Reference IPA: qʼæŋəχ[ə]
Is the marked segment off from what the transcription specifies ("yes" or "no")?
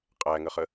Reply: no